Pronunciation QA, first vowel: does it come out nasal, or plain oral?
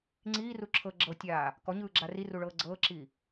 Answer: oral